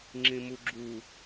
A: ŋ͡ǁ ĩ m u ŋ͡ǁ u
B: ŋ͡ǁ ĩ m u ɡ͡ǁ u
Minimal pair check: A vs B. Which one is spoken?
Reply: B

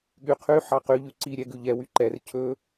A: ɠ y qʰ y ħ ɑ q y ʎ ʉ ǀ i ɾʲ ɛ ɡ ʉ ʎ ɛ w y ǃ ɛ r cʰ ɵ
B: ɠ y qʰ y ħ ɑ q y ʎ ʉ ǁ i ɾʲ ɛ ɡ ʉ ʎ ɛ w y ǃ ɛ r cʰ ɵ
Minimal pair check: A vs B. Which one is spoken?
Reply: A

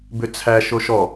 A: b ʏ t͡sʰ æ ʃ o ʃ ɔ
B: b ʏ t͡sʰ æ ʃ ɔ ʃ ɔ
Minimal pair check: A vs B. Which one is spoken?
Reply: A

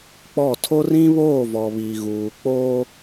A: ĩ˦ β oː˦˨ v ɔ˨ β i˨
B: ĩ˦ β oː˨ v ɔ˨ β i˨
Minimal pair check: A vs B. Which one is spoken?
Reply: A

